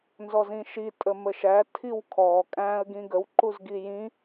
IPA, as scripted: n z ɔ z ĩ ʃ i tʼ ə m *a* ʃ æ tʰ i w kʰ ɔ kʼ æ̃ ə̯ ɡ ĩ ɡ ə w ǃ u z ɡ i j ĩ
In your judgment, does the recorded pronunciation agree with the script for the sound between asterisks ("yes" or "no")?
no